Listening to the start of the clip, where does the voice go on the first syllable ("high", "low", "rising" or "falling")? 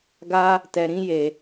high